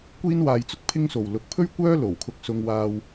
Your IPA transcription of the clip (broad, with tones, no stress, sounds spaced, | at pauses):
kʷ iː˥ n w aː˧ j t͡s ʊ˥ k̚ pʰ ɪ˥ ŋ s o˨ w l ʊ˧ k̚ pʰ ɵ˥ ɥ kʷ œː˥ l o˨˩ w kʰ ʊ˧ k̚ s ʊ˧ ŋ w aː˧ w